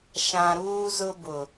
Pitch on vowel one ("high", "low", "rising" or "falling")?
low